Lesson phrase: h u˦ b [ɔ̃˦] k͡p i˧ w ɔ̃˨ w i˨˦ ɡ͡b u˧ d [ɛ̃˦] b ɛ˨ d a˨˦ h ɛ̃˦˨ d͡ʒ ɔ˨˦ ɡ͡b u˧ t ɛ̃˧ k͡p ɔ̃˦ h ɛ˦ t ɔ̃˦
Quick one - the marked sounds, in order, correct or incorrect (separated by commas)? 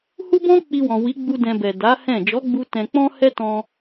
correct, incorrect